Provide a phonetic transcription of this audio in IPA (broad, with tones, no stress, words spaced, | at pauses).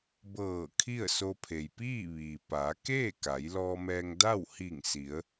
bɤː˧˩ kʰi˥˨ə̯so˧pʰe˩j piː˥˨ʋiː˩paː˩˧ keː˥˨ ka˩˧jlɔː˧mɛː˧ŋda˥˨w hi˧˩ŋ si˩˧ə̯